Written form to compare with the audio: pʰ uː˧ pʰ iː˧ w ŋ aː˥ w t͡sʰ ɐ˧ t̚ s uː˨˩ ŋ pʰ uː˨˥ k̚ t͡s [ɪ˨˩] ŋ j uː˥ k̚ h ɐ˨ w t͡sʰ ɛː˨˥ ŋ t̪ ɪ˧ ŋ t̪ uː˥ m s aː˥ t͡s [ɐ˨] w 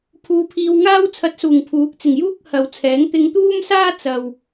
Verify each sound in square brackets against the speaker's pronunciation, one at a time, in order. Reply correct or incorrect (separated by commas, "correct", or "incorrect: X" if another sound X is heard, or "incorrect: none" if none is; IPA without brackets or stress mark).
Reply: correct, correct